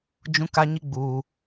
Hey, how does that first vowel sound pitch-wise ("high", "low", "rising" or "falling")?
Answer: high